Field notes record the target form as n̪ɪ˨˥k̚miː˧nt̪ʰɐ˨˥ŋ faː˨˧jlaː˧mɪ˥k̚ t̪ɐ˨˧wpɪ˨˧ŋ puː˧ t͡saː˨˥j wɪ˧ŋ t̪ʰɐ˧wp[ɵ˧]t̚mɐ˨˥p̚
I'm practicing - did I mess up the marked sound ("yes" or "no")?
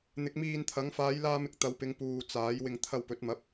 yes